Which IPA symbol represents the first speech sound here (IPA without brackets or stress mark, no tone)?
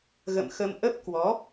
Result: ɣ